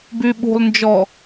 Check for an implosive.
present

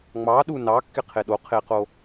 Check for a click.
absent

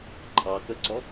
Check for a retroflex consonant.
absent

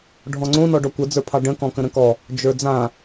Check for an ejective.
absent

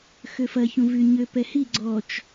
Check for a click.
present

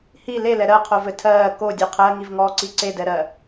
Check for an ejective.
absent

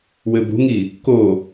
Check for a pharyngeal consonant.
absent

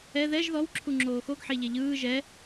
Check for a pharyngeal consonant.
present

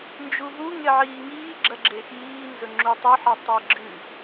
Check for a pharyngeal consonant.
present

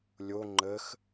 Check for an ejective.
absent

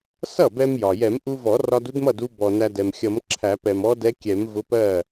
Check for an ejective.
absent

